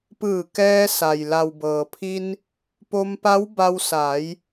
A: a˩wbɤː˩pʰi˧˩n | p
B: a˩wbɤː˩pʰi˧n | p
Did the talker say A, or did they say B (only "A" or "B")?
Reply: B